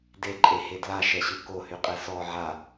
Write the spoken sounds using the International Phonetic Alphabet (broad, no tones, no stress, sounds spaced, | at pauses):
d e ǃʼ e h e d l a ʃ ɛ ɕ ɯ k o h y qʼ ɛ s ɔ ʕ a